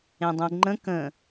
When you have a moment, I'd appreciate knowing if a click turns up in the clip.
yes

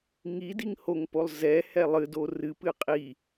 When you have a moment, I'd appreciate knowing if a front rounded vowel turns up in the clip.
no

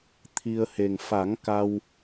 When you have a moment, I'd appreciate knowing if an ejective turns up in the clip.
no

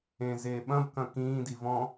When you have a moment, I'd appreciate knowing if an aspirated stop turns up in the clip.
no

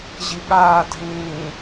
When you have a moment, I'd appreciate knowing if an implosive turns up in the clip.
yes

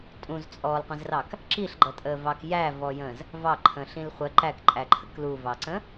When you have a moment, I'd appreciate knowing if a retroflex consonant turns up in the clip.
no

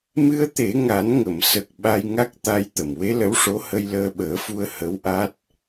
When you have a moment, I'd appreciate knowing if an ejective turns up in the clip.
no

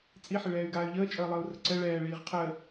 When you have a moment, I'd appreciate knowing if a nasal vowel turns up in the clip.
no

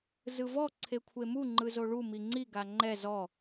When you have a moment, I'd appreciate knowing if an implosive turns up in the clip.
no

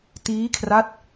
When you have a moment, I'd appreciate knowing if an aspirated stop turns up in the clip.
yes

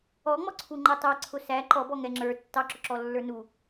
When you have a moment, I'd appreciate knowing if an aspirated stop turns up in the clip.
yes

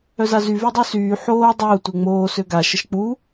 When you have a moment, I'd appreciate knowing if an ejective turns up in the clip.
no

